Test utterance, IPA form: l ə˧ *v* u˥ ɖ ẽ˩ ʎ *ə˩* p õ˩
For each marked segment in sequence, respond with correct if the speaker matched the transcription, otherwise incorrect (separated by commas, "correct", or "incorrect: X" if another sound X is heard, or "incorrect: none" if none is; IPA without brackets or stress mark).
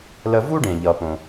correct, incorrect: ʌ˩